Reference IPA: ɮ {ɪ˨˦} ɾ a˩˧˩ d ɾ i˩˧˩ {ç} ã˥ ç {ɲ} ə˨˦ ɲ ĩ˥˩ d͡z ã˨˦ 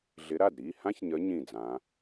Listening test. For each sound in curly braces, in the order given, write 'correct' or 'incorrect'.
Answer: correct, incorrect, correct

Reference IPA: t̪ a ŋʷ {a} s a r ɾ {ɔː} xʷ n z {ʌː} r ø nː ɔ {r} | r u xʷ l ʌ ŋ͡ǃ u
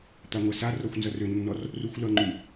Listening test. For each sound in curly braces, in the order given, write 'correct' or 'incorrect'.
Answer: correct, incorrect, incorrect, correct

